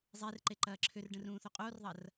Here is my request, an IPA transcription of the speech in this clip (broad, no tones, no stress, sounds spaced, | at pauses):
zˤ e r ǃ e ǃ ɐː ǁʰ ʏ r ɖ ə̃ r ũː θ o qʼ oː r ðˤ ɐ r